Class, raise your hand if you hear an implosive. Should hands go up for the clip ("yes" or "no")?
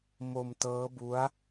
no